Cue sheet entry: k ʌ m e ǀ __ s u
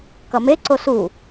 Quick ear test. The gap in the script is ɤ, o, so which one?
o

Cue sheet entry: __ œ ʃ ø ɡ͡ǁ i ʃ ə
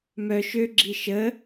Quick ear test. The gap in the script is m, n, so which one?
m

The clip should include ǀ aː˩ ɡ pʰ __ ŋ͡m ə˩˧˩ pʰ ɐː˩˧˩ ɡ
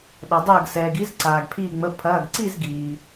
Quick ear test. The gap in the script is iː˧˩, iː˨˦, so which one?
iː˧˩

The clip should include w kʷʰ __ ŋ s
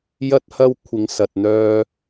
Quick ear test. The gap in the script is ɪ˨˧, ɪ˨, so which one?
ɪ˨˧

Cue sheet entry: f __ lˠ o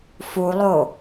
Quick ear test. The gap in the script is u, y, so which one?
u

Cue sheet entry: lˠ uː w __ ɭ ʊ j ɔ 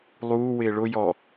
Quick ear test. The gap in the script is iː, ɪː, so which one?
ɪː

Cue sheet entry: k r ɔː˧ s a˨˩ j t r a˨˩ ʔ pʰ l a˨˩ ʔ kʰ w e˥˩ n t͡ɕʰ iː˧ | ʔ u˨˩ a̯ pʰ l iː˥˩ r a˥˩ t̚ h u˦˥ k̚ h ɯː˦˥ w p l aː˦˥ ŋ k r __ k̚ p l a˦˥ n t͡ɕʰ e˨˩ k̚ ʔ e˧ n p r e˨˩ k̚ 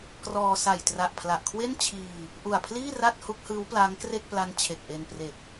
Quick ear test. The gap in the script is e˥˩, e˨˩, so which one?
e˥˩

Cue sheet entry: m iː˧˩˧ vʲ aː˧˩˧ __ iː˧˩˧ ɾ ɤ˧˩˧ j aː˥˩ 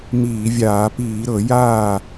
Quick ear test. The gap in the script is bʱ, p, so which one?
p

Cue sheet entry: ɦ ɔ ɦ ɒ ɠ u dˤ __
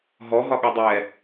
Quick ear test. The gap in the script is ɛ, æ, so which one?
ɛ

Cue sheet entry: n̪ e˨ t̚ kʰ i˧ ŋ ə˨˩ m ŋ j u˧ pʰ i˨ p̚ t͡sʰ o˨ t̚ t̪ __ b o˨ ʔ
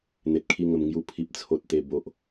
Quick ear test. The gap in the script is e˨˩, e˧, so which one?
e˨˩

